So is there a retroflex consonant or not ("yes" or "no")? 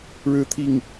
yes